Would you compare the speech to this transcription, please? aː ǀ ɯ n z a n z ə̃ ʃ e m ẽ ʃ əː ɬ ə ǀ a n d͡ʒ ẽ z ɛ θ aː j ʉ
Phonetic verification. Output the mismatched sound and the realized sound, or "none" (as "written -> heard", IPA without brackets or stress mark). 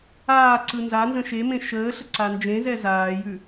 θ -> z